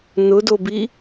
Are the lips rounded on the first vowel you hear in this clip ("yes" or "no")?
yes